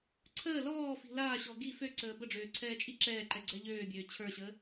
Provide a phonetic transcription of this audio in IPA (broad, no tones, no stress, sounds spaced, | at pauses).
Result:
ǀʰ əː l ɔː f i̤ l aː ɕ ɔ ɡ i f ø ǀ əː b ə ɖ͡ʐ øː ǀʰ ɛː t͡ʃʼ i ǁ ɛː ǃ ɛ ɡ͡ǀ ɛ ʎ øː bʲ øː t͡ɕʰ ə˞ ɕ əː